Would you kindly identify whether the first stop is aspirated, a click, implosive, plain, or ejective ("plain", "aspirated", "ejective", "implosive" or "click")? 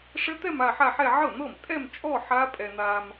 plain